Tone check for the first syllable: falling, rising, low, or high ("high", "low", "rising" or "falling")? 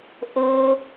high